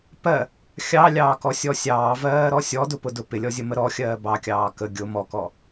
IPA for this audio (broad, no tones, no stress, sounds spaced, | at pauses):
p ɜ | xʲ ɑ lʲ ɑː k ɔ sʲ ɔ sʲ ɑː v ɜː ɾ ɔ sʲ ɔ d ʊ p ʊ d ʊ p ɪ lʲ ɔ zʲ ə m ə ɾ ɔ xʲ ɜː b ɑ kʲ ɑː k ə ɡʲ ʊ m ɔ k ɔ